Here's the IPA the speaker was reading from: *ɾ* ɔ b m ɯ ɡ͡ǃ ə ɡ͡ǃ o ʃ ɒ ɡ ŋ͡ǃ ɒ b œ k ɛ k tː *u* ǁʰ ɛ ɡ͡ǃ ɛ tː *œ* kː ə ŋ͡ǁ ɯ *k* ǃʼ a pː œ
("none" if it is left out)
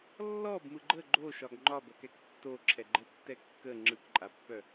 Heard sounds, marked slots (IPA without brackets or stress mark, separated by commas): lː, o, ɛ, k